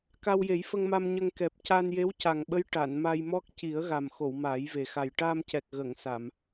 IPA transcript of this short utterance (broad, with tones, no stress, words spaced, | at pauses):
ka˧wje˨˩˦jfə˧ŋma˧m ɲə˧ŋkɛ˨˩p̚ ca˧nje˧˥wca˨˩ŋɓə˧˥j ʈa˨˩˨nma˧j mɔ˦˥k̚ ci˨˩˦ə̯ ɣa˨˩mxo˨˩˨w maː˨˩˦jve˨˩ xa˨˩j ʈaː˧mcɛ˨˩k̚ ɣə˨˩˨ŋ sa˨˩˨m